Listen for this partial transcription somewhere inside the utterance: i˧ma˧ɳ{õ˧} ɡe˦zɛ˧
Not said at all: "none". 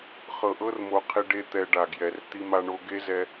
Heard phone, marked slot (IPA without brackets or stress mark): o˧